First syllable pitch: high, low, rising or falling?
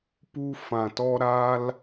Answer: high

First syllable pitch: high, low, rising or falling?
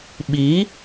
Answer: rising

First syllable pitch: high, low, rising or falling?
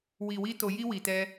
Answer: low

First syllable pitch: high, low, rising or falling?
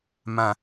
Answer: low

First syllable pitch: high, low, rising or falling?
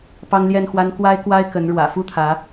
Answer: high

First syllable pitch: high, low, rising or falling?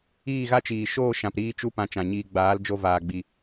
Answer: falling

